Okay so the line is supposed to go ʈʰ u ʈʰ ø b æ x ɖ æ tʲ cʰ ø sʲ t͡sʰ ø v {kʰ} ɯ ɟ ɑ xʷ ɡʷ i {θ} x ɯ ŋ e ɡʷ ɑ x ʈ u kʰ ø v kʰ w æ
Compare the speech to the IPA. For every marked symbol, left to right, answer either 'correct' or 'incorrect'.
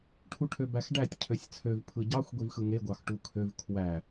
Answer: incorrect, incorrect

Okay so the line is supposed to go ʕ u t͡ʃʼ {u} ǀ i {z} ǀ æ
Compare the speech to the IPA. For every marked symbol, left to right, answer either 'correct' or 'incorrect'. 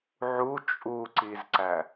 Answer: correct, correct

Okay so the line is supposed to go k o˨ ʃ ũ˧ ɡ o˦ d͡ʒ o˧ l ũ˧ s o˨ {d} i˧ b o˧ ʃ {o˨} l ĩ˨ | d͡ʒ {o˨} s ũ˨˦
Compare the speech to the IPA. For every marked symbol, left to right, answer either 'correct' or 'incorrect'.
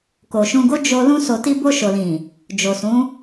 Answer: incorrect, correct, correct

